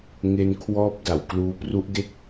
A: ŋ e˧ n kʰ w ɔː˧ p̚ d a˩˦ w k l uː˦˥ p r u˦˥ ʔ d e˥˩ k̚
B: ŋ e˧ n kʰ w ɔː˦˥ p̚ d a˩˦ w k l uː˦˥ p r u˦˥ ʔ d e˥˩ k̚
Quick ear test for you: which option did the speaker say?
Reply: B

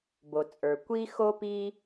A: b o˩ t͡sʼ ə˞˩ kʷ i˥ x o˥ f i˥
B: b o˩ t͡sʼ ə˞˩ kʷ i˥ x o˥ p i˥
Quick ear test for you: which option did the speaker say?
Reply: B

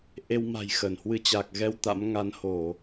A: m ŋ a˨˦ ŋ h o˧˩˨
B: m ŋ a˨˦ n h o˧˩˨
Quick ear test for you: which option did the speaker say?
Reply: B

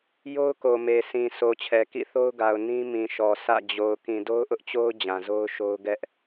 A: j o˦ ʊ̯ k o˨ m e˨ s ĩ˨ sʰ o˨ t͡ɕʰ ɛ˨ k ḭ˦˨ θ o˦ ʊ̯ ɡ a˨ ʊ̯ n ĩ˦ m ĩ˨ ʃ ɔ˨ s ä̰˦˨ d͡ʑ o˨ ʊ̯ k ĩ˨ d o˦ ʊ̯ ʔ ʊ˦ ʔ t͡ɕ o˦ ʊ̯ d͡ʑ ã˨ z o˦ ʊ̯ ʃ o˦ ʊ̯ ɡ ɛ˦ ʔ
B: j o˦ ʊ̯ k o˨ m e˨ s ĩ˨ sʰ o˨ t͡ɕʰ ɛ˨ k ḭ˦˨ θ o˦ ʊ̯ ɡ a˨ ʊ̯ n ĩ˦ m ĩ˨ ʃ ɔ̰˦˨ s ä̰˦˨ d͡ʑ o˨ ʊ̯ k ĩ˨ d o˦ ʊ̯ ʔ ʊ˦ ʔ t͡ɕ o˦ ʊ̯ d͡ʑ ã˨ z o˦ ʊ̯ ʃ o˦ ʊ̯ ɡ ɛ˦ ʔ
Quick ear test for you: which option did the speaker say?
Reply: A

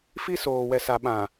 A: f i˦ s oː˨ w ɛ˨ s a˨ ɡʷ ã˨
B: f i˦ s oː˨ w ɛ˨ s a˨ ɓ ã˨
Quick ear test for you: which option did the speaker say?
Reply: B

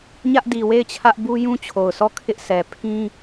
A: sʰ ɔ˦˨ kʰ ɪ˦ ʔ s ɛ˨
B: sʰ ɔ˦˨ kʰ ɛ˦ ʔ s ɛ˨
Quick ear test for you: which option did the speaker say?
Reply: A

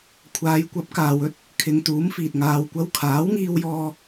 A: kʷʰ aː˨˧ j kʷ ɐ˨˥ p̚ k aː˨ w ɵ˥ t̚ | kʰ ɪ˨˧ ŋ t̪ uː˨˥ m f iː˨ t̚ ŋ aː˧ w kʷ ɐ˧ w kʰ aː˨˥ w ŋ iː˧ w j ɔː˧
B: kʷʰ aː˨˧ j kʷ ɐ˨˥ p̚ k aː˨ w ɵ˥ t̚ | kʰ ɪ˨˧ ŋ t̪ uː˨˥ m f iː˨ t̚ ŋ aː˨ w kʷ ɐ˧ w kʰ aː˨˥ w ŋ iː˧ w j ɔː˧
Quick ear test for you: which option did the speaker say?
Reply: B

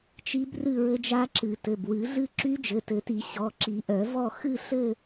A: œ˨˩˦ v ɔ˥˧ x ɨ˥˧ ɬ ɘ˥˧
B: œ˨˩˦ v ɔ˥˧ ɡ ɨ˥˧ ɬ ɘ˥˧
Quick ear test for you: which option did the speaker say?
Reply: A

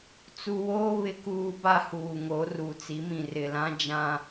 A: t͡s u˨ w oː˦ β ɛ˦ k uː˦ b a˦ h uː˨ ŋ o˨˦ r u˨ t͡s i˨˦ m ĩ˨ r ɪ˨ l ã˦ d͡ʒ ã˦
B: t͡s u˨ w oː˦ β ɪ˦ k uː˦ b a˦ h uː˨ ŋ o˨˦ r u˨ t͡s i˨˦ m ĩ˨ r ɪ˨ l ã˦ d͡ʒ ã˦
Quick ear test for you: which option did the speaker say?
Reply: B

